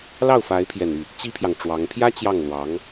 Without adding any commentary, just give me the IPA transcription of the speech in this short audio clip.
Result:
l ɑ˥˩ ʊ̯ f a˧˥ ɪ̯ pʰ j ɛ˨˩ n y˥˩ | t͡ɕ i˥ pʰ j ɑ˨ ŋ ʈ͡ʂ w ɑ˧˥ ŋ pʰ j ä˥ t͡ɕ j ɑ˥˩ ŋ l w ɑ˧˥ ŋ

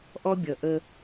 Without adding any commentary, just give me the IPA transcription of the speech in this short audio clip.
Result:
ʔ ɔ˦ bʲ ʌ˨ ʔ ə˦

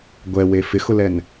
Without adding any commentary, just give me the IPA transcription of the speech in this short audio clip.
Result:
ɡʷ ɛ w e f ɪ x ʊ l ɛ n

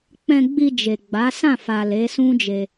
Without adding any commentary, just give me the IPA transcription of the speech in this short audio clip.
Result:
k͡p ɛ̃˧ ɡ͡b i˧ d͡ʒ e˨ ɡ͡b a˨˦ s ã˦˨ f a˨ l e˨˦ s ũ˦ d͡ʒ e˧

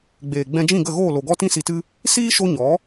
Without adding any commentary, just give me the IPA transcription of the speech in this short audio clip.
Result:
ɡ͡b eː˨ ɡ͡b ɛ̃˧ d͡ʒ ĩ˦˨ ɡ ə˦˨ ɣ oː˦˨ l o˨ ɡ ɔ˦ t ĩ˦ s i˧ t ɨ˦ | s iː˦ ʃ o˦ ɲ ɔ˨˦

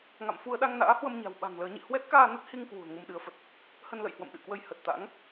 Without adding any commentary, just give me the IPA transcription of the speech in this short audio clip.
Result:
ŋ a̰˧˨ m f u˧ ə̯ ɗ a˧ ŋ n a̰ː˧˥ h w ə˧ m ɲ a̤˨˩ w ɓ a̤˨˩ ŋ l əː˨˦ ɲ ḭ˧˨ h w ɛ˦˥ t̚ k aː˧ n ə˦˥ t̚ h i˧ ŋ k w ṳ˨˩ ə̯ ŋ u˧ m ɗ ɨ˨˦ ə̯ f ə˨˩ t̚ | h ə˧ n l ə̰˧˨ j h w ə̰˧˨ m ɗ ɨ̰˧˨ k w ə˧ j h ə˨˩ t̚ t̪ a̰˧˥ ŋ

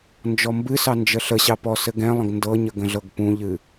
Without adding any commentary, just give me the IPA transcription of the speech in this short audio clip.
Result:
n d͡ʒ ɔ m b ɨ s ɑ n d͡ʒ ə ɬ ə ɕ ɑ p ɔ s ɘ ɡ ɛ̃ lˠ ə̃ ɡ n d ɤ ɲ ə ɡ ə̃ ɮ ɤ ɡ p ũ ʎ ɨ

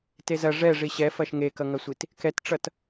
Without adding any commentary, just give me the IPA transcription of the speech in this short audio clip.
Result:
t e z ɐ ʐ ɛ ʐ i ɕ ɛ f ɐ ʃ ŋ e k ʌ ŋ ɐ sʷ i t | k ɛ t ʈ͡ʂ ʌ t

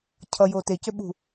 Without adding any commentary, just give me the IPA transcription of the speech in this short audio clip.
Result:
cʰ ʌ j oː t e c ø ɓ ṳ

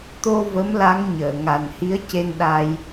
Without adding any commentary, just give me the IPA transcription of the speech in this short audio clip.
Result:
t̪ o˧ v ə˧˥ m l a˧˥ ŋ ɲ əː˨˩˨ ŋ a˨˩ n h i˧˥ ə̯ c e˧ n ɗ a˧ j

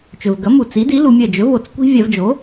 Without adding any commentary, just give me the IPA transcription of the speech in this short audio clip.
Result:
t͡ʃ ɵ˩ v ɡ ɐ˩˥ m u˩ t͡s i˩˥ d i˩˥ l u˩˧ mʲ ɐ˧˩ d͡ʒ ɵ˩˥ v o˩ t͡s kʷ i̤˦ vʲ a˧˩˧ v d͡ʒ o˩˥

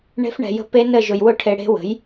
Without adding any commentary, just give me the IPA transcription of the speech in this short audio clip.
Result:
ɳ e̤˦˥ f ɳ ɛ̤˧ j ə̤˦˥ p e˦˥ n ə˥˧ ʒ ʊ˧ j w ʊ˥˧ ʈʰ e˧ ɽ e̤˦˥ w ə̤˩˥ j

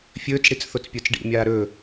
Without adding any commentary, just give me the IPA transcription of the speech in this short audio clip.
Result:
fʲ ɵː t͡s ɽ i t͡s θ o t͡s pʲ ə˞ t͡s ɖ ḭ mʲ aː ɾ ɵ

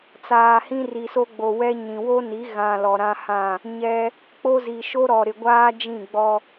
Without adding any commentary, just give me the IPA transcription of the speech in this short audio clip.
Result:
t͡s aː˨ h ĩ˦ r i˨ s o˦ ɡ͡b o˨ w ɛ˦ ɲ ĩ˨ w o˦ n i˨˦ ɣ ã˨ l ɔ˨ ɾ ã˦ h ã˦˨ | ɲ ɛ˦ | k͡p o˦ z i˨ ʃ o˦ ɾ ɔ˨ ɾ ɪ˨ ɡʷ aː˦ d͡ʒ ĩ˦˨ ɡ͡b ɔ˦

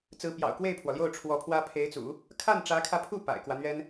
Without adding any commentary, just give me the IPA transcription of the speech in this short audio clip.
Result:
t͡s ɹ̩˧˥ p j ɑ̰˨˩ ʊ̯ k w e˥˩ ɪ̯ pʰ w ɔ˩ l j o˥˩ ʊ̯ ʈ͡ʂʰ w ɔ˧˥ pʰ w ä˥ pʰ e˧˥ ɪ̯ t͡s ṵ˨˩˦ | kʰ a˥˩ n ʈ͡ʂ ä˧˥ kʰ ä˧ pʰ u˥˩ p a̰˨˩ ɪ̯ k w ä˦ n̪ ɥ ɛ˥ n

